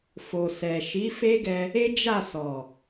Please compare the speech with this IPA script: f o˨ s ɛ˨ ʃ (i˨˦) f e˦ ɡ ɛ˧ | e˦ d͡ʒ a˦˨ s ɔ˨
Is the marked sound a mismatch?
no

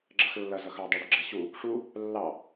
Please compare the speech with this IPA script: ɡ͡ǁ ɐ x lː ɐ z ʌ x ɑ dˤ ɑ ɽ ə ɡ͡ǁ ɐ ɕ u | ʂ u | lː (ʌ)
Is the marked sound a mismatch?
yes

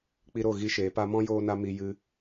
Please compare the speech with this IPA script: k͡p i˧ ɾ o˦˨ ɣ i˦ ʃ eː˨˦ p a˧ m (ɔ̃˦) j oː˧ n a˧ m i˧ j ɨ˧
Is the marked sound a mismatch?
no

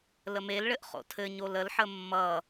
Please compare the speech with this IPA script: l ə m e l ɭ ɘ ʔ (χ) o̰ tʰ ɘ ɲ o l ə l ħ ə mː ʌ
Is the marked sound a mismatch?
no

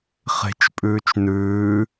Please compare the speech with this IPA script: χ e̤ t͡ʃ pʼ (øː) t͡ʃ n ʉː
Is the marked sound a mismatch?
yes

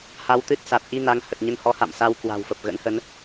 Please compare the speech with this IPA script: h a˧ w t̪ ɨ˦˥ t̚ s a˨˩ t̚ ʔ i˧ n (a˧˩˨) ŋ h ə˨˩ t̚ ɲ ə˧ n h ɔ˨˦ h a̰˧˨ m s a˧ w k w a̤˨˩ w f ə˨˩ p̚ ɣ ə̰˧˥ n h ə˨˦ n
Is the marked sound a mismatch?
yes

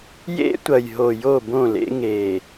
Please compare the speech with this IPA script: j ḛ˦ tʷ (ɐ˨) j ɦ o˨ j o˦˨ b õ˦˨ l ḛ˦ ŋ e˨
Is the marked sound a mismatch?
no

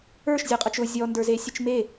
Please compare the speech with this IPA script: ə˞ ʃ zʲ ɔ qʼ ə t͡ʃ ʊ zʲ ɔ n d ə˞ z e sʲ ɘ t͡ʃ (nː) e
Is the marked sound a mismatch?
yes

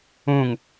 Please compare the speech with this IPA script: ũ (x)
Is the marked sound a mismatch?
yes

